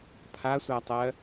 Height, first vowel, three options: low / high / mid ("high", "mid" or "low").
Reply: low